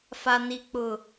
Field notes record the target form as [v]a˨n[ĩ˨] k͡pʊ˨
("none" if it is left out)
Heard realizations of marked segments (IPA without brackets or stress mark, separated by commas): f, i˨